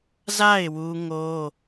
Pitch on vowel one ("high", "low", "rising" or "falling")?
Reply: falling